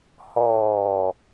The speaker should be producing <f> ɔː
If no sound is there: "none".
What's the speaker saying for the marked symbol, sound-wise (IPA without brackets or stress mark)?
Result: h